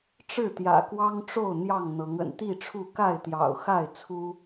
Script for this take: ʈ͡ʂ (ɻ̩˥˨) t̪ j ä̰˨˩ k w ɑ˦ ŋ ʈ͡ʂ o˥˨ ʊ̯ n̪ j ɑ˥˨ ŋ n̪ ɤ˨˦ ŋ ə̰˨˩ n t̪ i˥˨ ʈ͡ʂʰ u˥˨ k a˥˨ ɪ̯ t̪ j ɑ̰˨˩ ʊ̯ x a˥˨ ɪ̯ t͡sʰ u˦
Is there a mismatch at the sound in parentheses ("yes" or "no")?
no